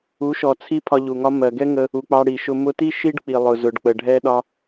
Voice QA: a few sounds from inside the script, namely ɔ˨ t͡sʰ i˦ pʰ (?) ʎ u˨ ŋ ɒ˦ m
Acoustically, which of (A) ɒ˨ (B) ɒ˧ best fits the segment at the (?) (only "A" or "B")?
B